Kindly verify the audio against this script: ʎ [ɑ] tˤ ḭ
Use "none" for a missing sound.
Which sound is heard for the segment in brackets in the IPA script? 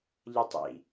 ʌ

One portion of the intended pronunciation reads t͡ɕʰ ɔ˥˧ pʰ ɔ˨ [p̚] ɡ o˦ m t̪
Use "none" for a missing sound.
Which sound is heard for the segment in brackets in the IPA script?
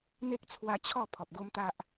p̚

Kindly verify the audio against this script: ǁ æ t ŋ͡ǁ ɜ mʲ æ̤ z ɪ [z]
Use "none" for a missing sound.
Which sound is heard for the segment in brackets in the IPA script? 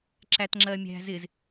z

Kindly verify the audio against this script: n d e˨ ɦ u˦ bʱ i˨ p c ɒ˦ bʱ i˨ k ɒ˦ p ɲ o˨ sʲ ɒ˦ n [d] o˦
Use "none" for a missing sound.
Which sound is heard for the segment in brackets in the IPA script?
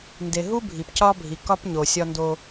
d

